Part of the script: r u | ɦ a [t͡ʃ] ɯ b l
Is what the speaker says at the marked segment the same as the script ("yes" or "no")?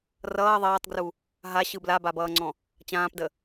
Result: no